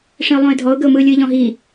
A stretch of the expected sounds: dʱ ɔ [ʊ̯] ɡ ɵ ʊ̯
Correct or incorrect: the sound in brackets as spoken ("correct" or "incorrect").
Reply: correct